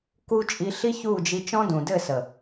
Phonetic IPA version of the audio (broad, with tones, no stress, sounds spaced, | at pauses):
k u˦ t͡ʃʼ i˧ ɬ i˦ ç u˦˨ d͡ʒ i˧ t͡ʃ ɔ̃˦ d ũ˨ d ɘ˦˨ s ə˨